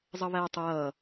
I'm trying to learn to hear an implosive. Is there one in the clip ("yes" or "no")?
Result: no